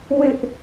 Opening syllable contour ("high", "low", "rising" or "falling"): high